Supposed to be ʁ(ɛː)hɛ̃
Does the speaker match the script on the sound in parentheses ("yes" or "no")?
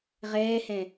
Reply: yes